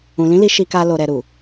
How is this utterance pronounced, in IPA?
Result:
ũ˨ l ĩ˨˦ l i˧ ʃ i˧ k a˧ l o˨ ɾ ɛ˨ ɾ u˨

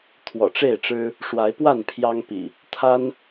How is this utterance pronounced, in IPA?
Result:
t̪ʰ w ɔ̰˨˩ ʈ͡ʂ e˥˨ ɪ̯ ʈ͡ʂ ɻ̩˦ | ʂ w a˨˦ ɪ̯ p w a˥˨ n pʰ j ɑ˦ ŋ p ḭ˨˩ | t̪ʰ a˦ n

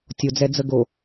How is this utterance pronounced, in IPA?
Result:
tʲ o d͡z ɛ d͡z ə ɡ o

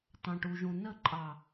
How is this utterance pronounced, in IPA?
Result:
t ɑ̃˨ ʈ u˨ ʒ ũ˨ n ə˦˨ ǃʼ ɑ˨

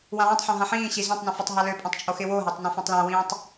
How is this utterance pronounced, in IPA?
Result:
w ã w ɛ̃ tˤ ħ œ̃ ɦ ã ħ ĩː ɕ i z œ̃ tˤ n õ f œ tˤ ɦ a l ø pʼ ɛ̃ tˤ t͡ʃʼ o x ɪ w o ɦ ɛ tˤ n ã f õ tˤ l œ̃ w ĩː tˤ

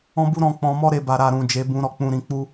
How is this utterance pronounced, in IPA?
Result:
ɔ̃˧ b u˧ ɾ ɔ̃˧ k͡p ɔ̃˧ m ɔ˦ ɾ e˧ b a˨ ɾ a˨ ɾ ũ˨ d͡ʒ e˨˦ b ũ˧ ɾ ɔ˨ k͡p ũ˧ ɾ ĩ˧ k͡p u˦

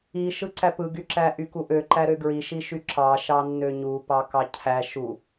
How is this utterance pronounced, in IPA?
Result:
i ʃ ɯ ǀ æ p ɯ ɡ y ǁ æ ʔ y k u ʔ ø ǃ æ ɾ ø ɡ ɹ i ʃ i ʃ y ǁ ɑ ʃ ɑ nː ø ɲ u p ɑ k ɑ cʰ æ ʃ u

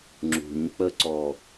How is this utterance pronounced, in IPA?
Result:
ŋ͡ǁ ṳ ɲ k͡p ə ǀ ɔ

